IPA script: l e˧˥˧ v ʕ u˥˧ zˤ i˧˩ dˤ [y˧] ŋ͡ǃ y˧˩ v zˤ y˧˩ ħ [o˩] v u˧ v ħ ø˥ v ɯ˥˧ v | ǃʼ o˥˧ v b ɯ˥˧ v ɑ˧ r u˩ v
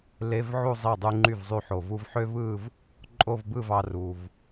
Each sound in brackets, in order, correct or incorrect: correct, correct

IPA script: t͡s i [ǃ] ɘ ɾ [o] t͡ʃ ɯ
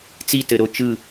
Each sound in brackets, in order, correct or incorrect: incorrect, correct

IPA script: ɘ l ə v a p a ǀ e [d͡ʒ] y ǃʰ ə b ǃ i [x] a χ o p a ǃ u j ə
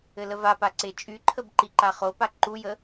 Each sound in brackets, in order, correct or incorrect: incorrect, incorrect

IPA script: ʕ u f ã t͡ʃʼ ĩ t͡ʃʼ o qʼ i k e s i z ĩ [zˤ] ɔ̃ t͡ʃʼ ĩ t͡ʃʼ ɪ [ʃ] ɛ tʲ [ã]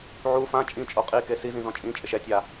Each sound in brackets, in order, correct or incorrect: incorrect, correct, incorrect

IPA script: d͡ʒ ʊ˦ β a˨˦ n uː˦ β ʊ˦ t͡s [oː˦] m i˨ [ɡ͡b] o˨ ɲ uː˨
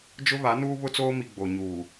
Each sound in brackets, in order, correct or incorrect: correct, correct

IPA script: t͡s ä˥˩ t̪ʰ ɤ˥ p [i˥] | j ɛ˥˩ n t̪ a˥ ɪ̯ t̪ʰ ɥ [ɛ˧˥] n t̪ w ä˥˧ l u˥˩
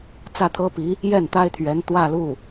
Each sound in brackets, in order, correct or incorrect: incorrect, correct

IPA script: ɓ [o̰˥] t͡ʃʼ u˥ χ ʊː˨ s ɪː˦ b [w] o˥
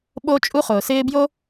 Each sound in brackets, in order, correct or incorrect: incorrect, incorrect

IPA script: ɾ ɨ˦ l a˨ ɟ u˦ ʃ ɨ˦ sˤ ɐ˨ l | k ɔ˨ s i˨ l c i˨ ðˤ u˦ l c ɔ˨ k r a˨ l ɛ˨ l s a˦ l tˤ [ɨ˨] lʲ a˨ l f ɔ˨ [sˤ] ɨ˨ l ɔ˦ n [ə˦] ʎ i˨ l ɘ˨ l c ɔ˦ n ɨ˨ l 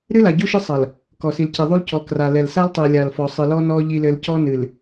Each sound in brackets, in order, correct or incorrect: incorrect, correct, incorrect

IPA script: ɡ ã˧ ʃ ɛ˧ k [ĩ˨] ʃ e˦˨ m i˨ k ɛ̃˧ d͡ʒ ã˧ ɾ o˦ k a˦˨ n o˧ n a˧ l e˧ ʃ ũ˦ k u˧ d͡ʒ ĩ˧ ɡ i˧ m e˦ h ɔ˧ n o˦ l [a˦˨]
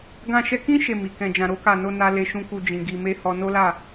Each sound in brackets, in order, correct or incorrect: incorrect, correct

